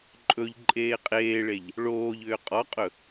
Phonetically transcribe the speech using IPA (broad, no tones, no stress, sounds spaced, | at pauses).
ǃʼ ɵ ʎ ǃʼ eː qʼ eː ɭ e ʎ | ɭ oː ʎ ʏː qʼ ɔ qʼ ɵ